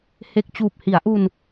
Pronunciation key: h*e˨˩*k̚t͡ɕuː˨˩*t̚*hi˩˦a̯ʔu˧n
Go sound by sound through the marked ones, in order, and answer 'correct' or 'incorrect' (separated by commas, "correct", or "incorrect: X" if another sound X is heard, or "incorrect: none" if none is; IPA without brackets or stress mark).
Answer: correct, incorrect: p̚